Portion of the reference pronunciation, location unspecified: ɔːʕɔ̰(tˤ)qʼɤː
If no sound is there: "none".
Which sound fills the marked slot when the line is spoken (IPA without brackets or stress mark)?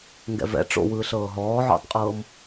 tˤ